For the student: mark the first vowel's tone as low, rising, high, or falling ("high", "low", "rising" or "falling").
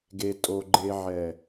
low